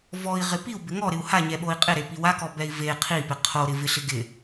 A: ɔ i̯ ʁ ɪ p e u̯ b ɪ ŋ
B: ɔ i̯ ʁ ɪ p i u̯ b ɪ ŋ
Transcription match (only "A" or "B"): B